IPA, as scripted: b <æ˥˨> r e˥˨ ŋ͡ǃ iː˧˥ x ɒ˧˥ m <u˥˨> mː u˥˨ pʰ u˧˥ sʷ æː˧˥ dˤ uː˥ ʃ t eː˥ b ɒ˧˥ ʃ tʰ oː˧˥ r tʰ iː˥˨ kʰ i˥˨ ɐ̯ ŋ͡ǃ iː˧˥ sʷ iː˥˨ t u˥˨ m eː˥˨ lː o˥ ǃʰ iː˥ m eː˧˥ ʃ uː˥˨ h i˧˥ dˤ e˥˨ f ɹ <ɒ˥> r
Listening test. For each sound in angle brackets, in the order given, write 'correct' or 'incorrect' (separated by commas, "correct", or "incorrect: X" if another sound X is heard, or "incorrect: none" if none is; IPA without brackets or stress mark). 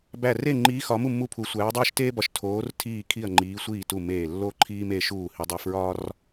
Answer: correct, correct, correct